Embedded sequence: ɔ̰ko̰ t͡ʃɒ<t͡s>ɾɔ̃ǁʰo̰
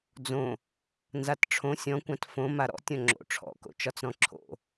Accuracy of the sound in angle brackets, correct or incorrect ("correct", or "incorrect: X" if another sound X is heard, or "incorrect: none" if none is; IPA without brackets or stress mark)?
correct